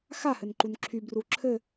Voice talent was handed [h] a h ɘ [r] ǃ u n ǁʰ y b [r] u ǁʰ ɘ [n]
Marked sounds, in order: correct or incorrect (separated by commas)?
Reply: incorrect, incorrect, correct, incorrect